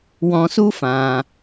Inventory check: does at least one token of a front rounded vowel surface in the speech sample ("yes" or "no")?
no